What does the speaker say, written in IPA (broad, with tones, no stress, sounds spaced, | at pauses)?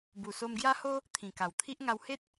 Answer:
b u˨˩ s o˧ m ɡ j a˦ h o˦ | t̪ʰ ĩ˨˩ k a˨˩ w t̪ʰ i˦ ʔ ŋ a˧ w h e˦ t̚